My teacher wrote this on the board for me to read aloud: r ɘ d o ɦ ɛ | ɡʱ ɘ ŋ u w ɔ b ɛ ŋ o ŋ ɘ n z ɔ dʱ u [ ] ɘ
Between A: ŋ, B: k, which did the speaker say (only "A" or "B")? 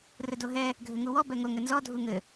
A